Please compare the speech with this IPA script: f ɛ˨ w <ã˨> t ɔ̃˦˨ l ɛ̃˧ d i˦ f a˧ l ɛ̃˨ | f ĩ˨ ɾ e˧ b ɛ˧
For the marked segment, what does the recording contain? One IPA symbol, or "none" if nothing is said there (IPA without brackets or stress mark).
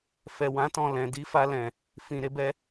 ã˨˦